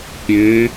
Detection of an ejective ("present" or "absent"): absent